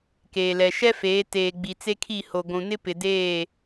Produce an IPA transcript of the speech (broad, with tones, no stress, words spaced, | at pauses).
keː˨lɛ˨ ʃɛ˦feː˨˦ teː˨ ɡ͡bi˨ t͡se˦kʰi˦˨ho˨ ɡʷũ˨nɪ˦pɪ˨ deː˦˨